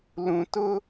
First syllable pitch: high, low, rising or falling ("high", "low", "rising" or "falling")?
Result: low